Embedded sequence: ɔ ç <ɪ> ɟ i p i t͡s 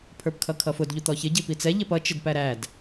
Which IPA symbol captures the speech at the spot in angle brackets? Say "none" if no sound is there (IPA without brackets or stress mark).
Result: ɪ